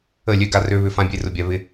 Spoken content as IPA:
ə˦˨ lʲ ø˦˨ ɡ a˧ r ø˦ β ʏ˦ f ã˧ bʲ e˧ r ʊ˨ bʲ a˨ β ɪ˧

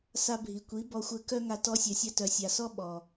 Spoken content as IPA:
s a˧ bʱ i˨ kʷ i˨˦ b ɔ˧ xʷ ɘ˧ k œ˦ ŋ a˧ t ɔ˧ sʲ œ˨ sʲ a˧ t œ˨ sʲ a˨ s ɔ˦ ɓ ɔ˨

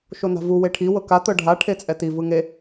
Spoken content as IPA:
ʃ o n a̤ v u w e ʈʰ i w ɤ k a t̪ ɤ ɖʱ a ʈʰ e t͡sʼ ɛ t i v ɯ ŋ e

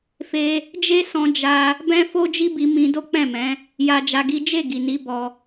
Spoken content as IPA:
f e˧ | d͡ʒ e˦ s ɔ̃˧ d͡ʒ a˧ | b ɛ̃˧ f o˦ d͡ʒ i˦ b i˧ m ĩ˧ d o˦ k͡p ɛ̃˦˨ m ɛ̃˨˦ | j a˧ d͡ʒ a˧ ɡ i˦ d͡ʒ e˦˨ ɡ i˨ n i˨˦ b ɔ˧

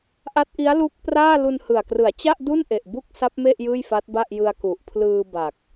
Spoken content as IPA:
ʔ a˦˥ t̚ ʔ i˦˥ a̯ l u˦˥ k̚ p r aː˥˩ l u˧ n h ɯ˨˩ a̯ k r ɯ˩˦ a̯ t͡ɕ a˥˩ ʔ d u˥˩ n ʔ e˨˩ ʔ b u˥˩ k̚ s a˦˥ p̚ m e˥˩ ʔ j ɯː˥˩ j f a˦˥ t̚ b a˥˩ ʔ j ɯ˧ a̯ k u˨˩ ʔ pʰ l ɯː˧ b a˨˩ k̚

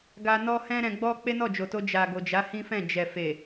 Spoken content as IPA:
ɡ a˧ n ɔ˦ h ɛ̃˦ ɾ ɛ̃˧ ɡ͡b ɔ˦ k͡p e˦ n ɔ˦˨ d͡ʒ o˨ t o˧ d͡ʒ a˨ ɡ o˨ d͡ʒ a˨˦ h ĩ˦ f ɛ̃˦˨ d͡ʒ ɛ˨ f e˨

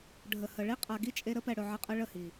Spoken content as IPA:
ɖʱ ə˨ h ə˨ ɭ i˦ qʼ a˨ ɡ i˦ t͡ʃʼ e˧ ɾ ə˦ p ɛ˨ ɽ ɵ˨ ʕ ə˧ qʼ ə˧ ɭ ə˦˨ h i˨

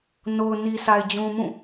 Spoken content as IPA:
n o˨ ʊ̯ n i˨ sʰ a˨ ɪ̯ d͡ʑ ũ˨ m ũ˦˨

